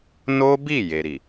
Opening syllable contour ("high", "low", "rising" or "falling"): high